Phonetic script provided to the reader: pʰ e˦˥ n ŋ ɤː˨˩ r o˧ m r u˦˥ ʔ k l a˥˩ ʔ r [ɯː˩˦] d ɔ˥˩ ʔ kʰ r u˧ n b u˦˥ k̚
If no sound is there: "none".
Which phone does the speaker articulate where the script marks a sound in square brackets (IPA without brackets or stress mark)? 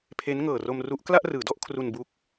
ɯː˩˦